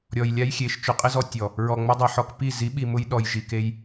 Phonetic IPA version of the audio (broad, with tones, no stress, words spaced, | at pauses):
ɾʲɔ˨j lʲa˦jxʲe˨˦ʃ t͡ʃʊ˨qʼɪ˦zɔ˧ tʲɔ˨ | ɹɔ˨ŋ͡mʊ˧dˤi˨ ħɔ˧kpi˦˨ zi˨˦ɓi˨mʊ˧j ɗɔ˨jʒi˨ ke˧j